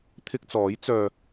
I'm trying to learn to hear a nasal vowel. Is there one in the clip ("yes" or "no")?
no